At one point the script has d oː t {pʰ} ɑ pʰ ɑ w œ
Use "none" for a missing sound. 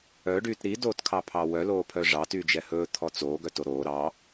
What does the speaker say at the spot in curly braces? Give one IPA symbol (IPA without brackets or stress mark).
kʰ